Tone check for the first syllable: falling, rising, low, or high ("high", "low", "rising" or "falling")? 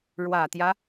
low